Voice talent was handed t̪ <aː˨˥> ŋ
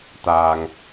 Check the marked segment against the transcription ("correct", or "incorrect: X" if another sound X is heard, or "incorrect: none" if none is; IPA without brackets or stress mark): incorrect: aː˨